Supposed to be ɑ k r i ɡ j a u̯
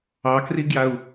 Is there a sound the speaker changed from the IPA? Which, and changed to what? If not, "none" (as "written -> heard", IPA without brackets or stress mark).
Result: none